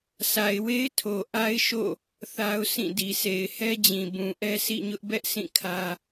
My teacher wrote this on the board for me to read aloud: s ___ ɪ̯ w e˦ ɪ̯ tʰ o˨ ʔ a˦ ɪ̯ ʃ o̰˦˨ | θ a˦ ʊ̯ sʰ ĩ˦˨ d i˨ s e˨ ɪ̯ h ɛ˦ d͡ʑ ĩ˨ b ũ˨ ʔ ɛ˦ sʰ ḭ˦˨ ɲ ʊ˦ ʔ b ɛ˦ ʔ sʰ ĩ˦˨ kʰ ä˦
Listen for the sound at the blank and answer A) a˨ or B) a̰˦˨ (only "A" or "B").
A